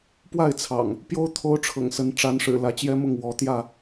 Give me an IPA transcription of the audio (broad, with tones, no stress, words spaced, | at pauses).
pwa˥˨ɪ̯t͡sʰɑ̰˨˩ŋ | pjo˦ʊ̯ t̪ʰo˦ʊ̯ʈ͡ʂʰɤ̰˨˩ŋsə˨˦n ʈ͡ʂa˨˦nʂɻ̩˨˩ lä˨˦t͡ɕjɛ˦ mʊ˥˨ŋwɔ˨˦ t̪jä˥˨